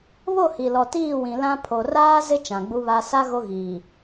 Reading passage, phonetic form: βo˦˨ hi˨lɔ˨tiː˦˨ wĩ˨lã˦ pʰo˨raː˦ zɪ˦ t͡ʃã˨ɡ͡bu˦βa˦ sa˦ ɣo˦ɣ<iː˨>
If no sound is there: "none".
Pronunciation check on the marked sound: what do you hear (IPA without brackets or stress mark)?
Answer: iː˨